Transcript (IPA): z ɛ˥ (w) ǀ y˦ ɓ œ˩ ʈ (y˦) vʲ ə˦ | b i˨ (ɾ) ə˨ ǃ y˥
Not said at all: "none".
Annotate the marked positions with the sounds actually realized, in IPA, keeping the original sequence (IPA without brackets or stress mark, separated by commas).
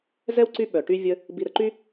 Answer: w, y˦, ɾ